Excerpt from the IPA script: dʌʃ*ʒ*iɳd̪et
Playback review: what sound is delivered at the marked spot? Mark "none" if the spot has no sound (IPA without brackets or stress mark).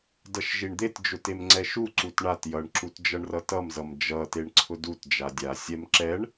ʒ